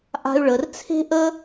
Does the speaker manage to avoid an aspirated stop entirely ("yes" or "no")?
no